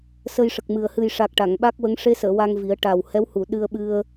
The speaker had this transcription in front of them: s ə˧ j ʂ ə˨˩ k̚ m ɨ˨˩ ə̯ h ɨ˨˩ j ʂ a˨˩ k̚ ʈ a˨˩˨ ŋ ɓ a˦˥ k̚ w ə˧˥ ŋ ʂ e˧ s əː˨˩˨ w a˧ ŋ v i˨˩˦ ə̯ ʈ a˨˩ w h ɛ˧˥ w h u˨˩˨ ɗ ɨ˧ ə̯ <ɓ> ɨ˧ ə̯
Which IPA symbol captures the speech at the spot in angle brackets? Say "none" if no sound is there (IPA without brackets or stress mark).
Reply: ɓ